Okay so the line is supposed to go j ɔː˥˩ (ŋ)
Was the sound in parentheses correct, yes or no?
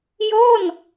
no